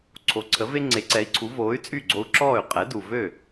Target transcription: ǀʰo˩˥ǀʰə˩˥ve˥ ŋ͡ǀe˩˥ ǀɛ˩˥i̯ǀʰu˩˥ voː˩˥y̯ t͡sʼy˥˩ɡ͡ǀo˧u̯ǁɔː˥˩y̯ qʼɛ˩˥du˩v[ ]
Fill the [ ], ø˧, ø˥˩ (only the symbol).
ø˥˩